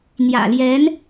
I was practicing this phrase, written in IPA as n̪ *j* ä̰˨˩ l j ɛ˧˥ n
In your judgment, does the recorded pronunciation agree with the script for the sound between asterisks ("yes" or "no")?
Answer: yes